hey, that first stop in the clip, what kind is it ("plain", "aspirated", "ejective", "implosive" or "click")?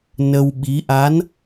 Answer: implosive